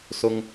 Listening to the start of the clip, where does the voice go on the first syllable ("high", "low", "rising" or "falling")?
low